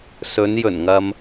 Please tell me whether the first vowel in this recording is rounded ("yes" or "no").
yes